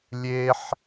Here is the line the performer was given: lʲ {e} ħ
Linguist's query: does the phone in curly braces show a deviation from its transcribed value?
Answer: no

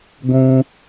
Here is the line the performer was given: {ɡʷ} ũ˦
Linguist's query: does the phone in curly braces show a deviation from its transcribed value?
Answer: no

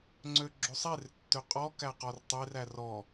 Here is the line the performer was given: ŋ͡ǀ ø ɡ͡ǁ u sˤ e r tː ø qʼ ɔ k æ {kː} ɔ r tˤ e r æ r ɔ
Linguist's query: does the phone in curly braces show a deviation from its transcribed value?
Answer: yes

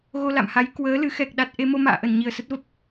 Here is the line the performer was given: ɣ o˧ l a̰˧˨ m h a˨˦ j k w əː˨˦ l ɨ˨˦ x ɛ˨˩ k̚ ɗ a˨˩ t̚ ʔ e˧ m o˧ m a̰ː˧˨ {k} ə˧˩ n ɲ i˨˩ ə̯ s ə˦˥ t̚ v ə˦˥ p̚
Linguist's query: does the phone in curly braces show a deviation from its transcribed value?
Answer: yes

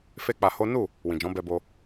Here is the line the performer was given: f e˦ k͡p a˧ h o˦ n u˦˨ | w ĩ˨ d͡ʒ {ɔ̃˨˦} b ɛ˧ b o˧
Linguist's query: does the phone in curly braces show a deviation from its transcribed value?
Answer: no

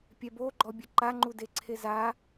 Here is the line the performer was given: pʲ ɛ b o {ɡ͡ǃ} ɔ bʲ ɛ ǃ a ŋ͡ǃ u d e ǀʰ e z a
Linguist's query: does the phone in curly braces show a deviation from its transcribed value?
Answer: no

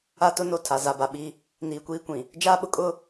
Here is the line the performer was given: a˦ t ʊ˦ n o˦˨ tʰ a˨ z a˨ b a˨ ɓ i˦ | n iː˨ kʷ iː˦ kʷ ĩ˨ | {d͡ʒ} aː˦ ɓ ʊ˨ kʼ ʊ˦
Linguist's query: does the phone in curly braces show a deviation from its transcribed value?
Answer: no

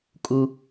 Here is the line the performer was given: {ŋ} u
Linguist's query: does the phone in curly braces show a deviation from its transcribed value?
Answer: yes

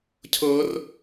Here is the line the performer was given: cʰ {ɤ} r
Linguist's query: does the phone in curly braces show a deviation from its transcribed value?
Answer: no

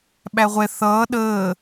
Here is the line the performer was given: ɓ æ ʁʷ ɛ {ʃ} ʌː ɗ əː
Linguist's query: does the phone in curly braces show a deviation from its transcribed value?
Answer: yes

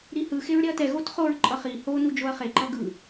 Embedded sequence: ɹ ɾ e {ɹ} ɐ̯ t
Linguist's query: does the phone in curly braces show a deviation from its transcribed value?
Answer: yes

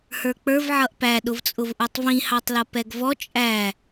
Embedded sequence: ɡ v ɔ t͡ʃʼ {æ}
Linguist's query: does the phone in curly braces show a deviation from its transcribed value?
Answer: no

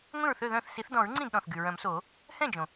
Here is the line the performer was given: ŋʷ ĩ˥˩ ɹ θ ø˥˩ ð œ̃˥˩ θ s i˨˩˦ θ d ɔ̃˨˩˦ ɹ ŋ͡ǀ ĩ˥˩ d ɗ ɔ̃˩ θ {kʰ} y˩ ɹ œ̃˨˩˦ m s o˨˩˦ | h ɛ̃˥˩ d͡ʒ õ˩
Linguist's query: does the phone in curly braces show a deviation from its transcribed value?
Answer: yes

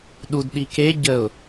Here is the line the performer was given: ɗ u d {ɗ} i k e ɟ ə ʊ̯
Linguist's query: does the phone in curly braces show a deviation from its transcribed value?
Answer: no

